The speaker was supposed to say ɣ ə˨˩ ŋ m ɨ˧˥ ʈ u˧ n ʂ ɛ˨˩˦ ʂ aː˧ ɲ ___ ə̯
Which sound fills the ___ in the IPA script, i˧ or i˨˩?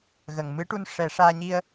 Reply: i˧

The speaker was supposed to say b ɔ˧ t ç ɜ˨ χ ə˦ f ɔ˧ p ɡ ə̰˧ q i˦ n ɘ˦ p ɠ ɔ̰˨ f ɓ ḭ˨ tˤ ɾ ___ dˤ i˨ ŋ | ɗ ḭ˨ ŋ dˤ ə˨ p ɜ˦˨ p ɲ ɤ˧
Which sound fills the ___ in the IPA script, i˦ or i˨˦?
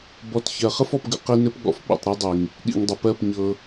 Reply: i˦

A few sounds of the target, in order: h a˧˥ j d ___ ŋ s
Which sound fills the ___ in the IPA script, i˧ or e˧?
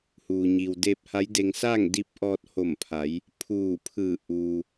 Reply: e˧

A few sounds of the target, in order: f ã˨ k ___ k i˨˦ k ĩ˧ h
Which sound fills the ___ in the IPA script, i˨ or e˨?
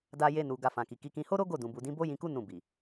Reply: i˨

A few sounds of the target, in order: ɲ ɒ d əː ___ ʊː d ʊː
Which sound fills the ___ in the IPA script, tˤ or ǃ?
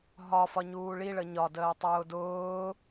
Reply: tˤ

